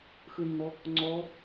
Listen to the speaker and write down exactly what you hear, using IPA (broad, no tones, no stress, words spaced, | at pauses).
xɯnːɔ | ŋ͡ǀɔ